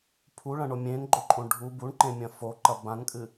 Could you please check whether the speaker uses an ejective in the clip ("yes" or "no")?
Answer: yes